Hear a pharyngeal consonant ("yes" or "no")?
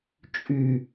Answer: no